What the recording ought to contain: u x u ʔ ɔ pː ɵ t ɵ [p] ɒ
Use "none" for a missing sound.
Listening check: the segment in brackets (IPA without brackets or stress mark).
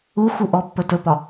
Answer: p